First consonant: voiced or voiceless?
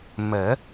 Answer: voiced